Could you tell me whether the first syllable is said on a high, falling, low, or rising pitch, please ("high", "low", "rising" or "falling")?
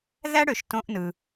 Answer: high